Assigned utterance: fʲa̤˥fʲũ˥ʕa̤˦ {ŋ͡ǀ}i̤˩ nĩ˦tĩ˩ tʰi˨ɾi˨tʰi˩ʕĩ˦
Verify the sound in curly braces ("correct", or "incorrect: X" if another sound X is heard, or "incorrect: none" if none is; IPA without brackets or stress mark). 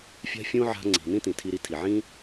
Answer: correct